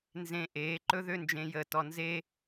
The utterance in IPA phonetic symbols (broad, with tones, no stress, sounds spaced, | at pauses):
n z ẽ˧ ʔ eː˩˥ ǃ ɵ˥ ð ø˥ n d͡ʒ ẽ˧ j əː˧ t ɔ˧ n z e˥